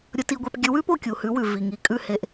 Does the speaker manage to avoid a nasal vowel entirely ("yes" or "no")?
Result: yes